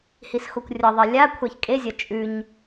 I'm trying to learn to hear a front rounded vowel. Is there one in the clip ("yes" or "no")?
no